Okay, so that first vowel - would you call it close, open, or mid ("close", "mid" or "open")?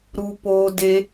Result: close